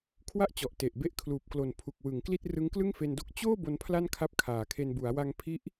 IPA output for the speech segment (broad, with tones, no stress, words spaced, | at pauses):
kʰwa˥˩ʔt͡ɕɔ˨˩ʔte˨˩ʔ be˦˥ʔkʰluː˨˩p̚klo˨˩n pʰu˨˩k̚wɯ˩˦ŋkli˥˩t̚ rɯ˦˥ŋklɯ˥˩ŋfe˧ndo˥˩k̚ t͡ɕoː˥˩ bo˦˥npʰla˥˩nkʰa˦˥p̚ kʰaː˩˦kʰe˧n bu˩˦a̯wa˧ŋpʰi˦˥ʔ